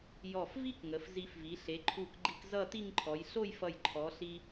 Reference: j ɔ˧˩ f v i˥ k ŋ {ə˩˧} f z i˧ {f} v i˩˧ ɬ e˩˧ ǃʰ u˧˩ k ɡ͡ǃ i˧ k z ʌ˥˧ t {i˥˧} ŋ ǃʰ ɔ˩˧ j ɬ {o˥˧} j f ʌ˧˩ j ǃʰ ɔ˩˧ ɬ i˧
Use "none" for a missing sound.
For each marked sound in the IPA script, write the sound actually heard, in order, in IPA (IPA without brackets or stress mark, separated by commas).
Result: ə˩˧, f, i˥˧, o˥˧